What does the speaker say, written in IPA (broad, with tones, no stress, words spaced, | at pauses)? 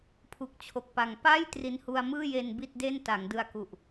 pʰu˨˩k̚t͡ɕʰo˨˩k̚pa˨˩ŋ pa˥˩j tri˧nhu˧a̯mɯː˥˩je˧n bi˥˩t̚de˥˩n ta˩˦ŋdɯ˧a̯ku˨˩ʔ